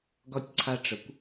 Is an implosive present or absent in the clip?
absent